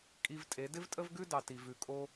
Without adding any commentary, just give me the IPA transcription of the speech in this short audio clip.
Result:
kʼi˧vtʼe˨˦ dɪ˦vtʼə˦vɡʉ˦dɑ˨ ti˨vʉ˨kʼo˧

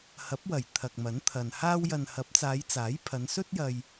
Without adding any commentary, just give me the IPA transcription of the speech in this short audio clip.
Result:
hɐ˨˥p̚wɐ˨˩j t̪ʰɐ˨k̚mɐ˨˥nt̪ʰɐ˨nhaː˥w jɐ˨nhɐ˨˥p̚t͡saː˨˧j t͡saː˨˥jpʰɐ˨˧nsɵ˥t̚jɐ˧j

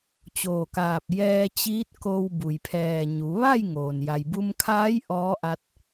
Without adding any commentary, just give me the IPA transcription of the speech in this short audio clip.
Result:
t͡ɕoː˧˩kaː˧˩p̚ jɛː˧t͡ɕiː˧˥t̚ ko˧w bu˩jpʰɛː˧˩ɲu˩˧ ʋa˥˨j ŋoː˩n ja˩jbu˧mkʰaː˧˥j ʔɔː˧˥ʔa˧t̚

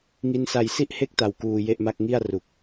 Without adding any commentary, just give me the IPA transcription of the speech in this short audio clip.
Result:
ŋi˦˥nsa˧j si˥˩ʔhe˥˩k̚ta˨˩w kuː˧je˥˩ʔma˥˩k̚ ŋi˥˩a̯ ru˨˩k̚

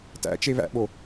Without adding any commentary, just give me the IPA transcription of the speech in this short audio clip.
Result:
tæ̰t͡ʃe βæ̰ɓo

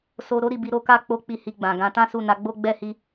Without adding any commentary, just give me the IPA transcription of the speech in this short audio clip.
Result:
so˦ ɾo˦ɾi˦˨bi˧ ɾo˦ka˦ k͡po˦k͡pi˦˨hi˧ɡ͡bã˨ ɡã˨˦ tã˦su˦˨na˨˦ ɡ͡bo˦ ɡ͡bɛ˦˨hi˧

